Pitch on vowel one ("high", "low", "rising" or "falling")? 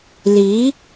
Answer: rising